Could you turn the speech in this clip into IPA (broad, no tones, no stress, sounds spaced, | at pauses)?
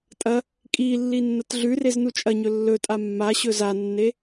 tʼ ɐ | kʼ i lː i nː ɐ t ɮ ʉ r e z n u t͡ʃʼ ɐ ɲ ɵ lː ɵ tʼ a mː a ɕ ɵ z a nː e